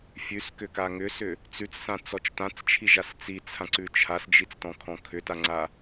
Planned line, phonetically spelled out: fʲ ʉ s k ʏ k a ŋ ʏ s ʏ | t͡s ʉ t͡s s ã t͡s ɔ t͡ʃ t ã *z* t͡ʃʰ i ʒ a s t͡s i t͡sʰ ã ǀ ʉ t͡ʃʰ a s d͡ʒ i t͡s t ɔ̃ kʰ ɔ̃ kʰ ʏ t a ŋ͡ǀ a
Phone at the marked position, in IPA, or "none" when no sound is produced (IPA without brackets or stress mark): t͡s